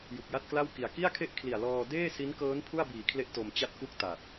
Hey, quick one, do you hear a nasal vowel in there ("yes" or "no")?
no